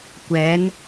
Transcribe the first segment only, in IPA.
kʷ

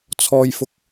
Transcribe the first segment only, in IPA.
t͡sʰ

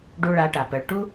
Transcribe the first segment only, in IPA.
ɖ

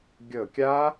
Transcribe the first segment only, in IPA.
ɡʲ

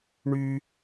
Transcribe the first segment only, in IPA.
ɳ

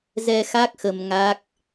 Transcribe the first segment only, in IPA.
z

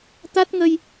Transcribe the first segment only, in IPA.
t̪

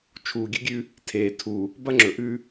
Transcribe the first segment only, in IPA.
t͡ʃʰ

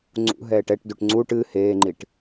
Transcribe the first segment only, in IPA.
ŋ͡ǀ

